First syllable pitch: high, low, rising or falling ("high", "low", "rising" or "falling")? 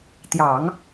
low